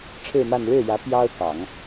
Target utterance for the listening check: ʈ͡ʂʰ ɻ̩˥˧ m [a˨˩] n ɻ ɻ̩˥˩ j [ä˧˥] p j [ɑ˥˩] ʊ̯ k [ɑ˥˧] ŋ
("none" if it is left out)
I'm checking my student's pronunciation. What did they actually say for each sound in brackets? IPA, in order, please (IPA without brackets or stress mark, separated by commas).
a˥˧, ä˧˥, ɑ˥, ɑ˨˩˦